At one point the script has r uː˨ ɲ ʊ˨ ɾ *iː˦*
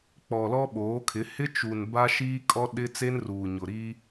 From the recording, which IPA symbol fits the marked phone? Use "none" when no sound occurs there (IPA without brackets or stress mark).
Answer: iː˦